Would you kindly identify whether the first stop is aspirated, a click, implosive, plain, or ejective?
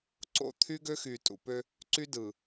click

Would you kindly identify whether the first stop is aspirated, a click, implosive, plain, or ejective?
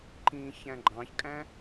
click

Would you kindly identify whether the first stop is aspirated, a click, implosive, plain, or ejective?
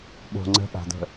implosive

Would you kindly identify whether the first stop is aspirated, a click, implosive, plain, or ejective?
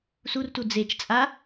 plain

